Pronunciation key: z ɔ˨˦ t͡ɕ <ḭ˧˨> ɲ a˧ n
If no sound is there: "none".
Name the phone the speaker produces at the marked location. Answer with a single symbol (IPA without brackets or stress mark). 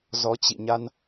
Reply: ḭ˧˨